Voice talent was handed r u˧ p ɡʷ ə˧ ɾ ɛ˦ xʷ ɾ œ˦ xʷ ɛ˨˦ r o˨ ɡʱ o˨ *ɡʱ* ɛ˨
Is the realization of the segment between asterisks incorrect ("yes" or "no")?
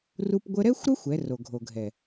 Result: no